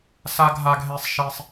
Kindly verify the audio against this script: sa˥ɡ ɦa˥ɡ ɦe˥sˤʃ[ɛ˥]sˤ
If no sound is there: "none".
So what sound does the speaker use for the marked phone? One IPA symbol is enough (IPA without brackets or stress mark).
e˥